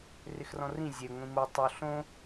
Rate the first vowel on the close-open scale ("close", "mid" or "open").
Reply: close